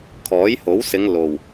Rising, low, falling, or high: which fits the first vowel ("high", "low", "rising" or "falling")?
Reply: rising